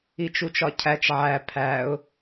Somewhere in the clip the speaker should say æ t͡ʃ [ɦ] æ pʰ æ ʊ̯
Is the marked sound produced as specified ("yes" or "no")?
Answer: no